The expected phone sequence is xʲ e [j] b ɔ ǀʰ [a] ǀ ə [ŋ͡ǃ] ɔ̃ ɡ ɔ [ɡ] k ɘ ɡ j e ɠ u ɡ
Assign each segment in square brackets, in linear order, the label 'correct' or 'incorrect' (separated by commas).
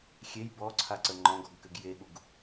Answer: correct, correct, correct, correct